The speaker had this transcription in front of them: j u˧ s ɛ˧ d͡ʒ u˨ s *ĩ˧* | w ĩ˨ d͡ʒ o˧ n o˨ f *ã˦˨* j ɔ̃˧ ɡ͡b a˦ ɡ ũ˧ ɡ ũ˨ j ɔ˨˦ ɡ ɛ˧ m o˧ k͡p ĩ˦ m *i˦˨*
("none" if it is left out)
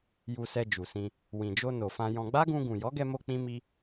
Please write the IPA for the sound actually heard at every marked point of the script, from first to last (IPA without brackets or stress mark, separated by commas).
ĩ˧, ã˧, i˦